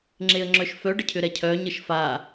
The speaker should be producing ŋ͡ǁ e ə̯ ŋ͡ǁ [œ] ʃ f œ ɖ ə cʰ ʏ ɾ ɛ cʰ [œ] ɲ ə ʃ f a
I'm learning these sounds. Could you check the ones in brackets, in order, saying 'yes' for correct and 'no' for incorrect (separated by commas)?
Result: yes, yes